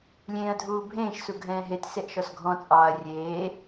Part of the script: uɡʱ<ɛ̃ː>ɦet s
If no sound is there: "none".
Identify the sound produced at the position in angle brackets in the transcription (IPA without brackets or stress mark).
ɛ̃ː